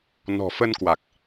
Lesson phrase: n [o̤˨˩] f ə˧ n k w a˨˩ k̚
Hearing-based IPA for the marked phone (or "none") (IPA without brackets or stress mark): ɔ̤˨˩